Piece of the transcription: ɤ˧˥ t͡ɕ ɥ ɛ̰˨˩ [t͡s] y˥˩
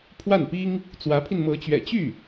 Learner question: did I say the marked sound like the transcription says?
no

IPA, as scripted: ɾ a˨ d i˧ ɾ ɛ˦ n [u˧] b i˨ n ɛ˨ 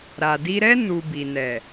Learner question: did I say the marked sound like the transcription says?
yes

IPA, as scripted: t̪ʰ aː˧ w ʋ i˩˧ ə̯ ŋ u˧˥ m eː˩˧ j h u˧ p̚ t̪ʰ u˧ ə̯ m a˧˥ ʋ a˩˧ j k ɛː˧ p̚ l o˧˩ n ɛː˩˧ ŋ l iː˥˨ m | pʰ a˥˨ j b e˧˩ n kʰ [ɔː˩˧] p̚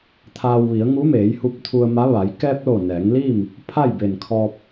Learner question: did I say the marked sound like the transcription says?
no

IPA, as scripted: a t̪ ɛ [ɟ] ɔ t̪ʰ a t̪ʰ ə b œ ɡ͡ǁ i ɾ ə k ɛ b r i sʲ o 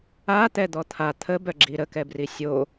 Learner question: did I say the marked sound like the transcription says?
no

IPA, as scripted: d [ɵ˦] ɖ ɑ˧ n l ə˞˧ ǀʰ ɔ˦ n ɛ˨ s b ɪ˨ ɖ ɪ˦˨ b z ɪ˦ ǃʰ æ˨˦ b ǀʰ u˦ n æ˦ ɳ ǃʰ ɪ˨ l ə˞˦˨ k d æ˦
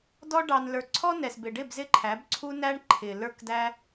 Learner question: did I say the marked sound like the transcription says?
no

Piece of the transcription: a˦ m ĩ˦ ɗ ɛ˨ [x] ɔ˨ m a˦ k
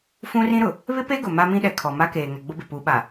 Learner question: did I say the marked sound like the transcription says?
no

